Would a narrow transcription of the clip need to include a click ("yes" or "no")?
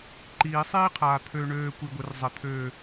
yes